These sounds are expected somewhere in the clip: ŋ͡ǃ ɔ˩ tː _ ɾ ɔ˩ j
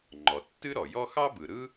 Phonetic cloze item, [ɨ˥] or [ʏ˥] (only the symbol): ɨ˥